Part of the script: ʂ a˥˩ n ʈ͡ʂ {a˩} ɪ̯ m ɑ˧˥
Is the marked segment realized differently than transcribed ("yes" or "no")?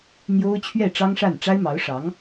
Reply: yes